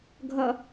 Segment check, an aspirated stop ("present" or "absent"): absent